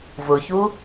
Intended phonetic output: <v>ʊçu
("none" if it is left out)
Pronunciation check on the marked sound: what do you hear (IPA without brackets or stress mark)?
v